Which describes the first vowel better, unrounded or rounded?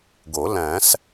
rounded